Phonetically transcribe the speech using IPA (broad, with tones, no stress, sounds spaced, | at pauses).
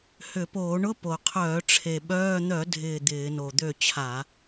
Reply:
h ʏ˧˩˧ p oː˧˩˧ ɳ ʊ˧˥˧ p o˨˩ qʰ œː˧˩˧ ʈ͡ʂʰ e˨˩ ɓ œː˧˥˧ n̪ œ˧˩˧ dʱ ɪː˦˨ d̪ ɪː˧˩˧ n o˨˩ d̪ ø˦˨ t͡ɕʰ a˧˩˧